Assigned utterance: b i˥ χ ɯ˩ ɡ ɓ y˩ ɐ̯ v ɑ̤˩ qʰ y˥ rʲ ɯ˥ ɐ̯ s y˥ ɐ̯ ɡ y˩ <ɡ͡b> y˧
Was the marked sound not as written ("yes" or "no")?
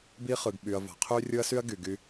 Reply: yes